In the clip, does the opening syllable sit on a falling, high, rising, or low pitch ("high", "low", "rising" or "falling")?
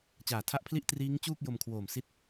low